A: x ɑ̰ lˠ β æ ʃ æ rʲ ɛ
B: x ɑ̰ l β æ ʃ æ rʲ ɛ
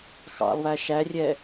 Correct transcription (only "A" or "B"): A